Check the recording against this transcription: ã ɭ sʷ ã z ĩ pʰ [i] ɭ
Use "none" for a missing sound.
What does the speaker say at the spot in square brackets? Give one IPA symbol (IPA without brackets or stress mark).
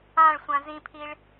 i